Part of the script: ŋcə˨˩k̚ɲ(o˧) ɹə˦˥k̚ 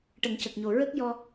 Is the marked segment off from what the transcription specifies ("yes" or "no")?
yes